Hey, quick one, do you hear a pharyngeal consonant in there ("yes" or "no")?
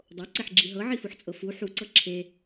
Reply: yes